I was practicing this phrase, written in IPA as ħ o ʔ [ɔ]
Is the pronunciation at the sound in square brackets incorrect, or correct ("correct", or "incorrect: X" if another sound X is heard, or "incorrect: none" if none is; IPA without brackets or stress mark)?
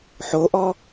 correct